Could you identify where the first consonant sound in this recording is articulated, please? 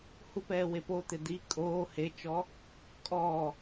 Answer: glottal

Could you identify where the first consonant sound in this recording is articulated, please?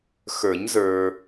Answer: velar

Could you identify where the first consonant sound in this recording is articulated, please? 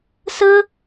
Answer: alveolar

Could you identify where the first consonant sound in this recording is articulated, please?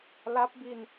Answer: alveolar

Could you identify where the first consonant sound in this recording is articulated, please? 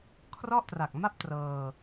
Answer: velar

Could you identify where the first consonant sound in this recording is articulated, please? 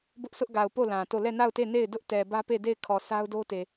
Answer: labial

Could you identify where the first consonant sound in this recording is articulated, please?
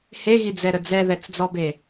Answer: glottal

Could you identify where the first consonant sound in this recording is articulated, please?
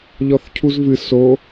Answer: palatal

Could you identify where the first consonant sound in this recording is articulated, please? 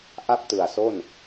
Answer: glottal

